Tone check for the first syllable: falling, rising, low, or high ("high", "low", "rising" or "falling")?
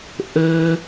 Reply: high